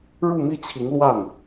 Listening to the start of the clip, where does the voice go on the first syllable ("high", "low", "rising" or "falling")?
falling